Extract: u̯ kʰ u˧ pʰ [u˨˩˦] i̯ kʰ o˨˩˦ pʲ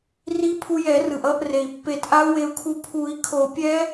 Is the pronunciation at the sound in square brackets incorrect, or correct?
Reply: correct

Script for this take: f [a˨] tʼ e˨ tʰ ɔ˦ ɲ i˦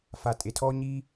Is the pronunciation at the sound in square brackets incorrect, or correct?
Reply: correct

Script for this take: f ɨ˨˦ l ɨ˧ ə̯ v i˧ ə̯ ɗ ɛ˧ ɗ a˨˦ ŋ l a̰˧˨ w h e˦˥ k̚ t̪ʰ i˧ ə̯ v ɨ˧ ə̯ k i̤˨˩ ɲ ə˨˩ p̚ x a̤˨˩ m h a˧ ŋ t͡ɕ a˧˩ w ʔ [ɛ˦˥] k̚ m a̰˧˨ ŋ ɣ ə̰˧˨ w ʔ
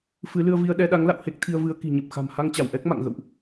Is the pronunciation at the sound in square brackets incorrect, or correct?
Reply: correct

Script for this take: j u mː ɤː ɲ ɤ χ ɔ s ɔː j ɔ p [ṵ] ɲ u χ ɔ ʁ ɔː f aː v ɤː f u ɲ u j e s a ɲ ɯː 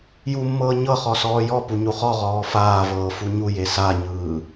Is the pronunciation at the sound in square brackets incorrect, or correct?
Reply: incorrect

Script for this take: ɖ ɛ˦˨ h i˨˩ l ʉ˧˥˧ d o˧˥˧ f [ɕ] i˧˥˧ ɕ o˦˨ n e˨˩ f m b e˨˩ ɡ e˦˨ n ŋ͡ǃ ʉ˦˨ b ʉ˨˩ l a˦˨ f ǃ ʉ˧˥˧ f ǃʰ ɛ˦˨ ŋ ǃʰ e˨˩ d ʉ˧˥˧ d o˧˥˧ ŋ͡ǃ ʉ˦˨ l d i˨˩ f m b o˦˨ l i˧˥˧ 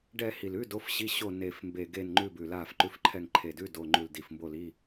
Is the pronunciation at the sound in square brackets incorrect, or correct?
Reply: correct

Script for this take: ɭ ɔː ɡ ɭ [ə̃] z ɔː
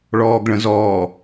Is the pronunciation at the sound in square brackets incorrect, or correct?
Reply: correct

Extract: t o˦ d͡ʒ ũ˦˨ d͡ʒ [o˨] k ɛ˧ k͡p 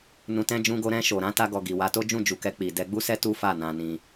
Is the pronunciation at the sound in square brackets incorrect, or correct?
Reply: incorrect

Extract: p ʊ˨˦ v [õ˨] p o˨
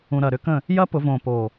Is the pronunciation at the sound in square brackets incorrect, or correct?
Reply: correct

